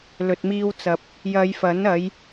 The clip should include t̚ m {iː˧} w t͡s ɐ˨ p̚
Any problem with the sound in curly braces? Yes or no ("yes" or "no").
no